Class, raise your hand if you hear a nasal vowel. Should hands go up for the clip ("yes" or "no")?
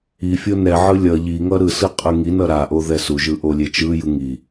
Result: no